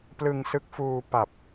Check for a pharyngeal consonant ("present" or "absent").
absent